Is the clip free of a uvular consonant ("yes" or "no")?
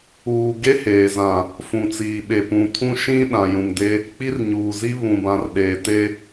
yes